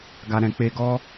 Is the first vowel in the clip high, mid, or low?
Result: low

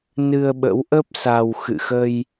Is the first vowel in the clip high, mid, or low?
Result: high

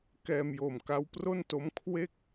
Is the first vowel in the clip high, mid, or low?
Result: mid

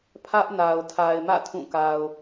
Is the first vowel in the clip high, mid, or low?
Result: low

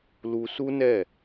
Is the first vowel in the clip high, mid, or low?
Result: high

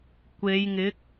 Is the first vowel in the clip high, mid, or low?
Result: mid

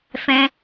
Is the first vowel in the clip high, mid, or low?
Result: mid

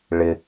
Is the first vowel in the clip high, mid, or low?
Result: high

